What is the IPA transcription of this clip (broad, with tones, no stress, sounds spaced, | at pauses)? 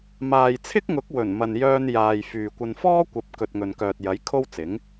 m aː˨ j t͡sʰ ɪ˥ k̚ ŋ ʊ˨˥ k̚ w ɵ˨˩ n m ɐ˨ n j œː˧ n j aː˨ j f yː˨ kʷ ɐ˧ n f ɔː˥ kʷ ɐ˨˥ p̚ k ɵ˨ t̚ ŋ ɵ˨ n k œː˨ t̚ j ɐ˨˥ j kʰ o˥ w t͡s ɪ˨˥ ŋ